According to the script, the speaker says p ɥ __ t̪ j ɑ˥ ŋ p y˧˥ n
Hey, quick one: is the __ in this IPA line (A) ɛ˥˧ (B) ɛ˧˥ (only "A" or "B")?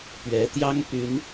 B